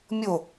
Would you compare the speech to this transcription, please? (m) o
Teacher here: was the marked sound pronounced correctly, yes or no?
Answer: no